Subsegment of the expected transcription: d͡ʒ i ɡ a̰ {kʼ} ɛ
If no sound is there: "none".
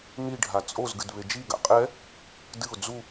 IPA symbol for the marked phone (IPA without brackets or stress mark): qʼ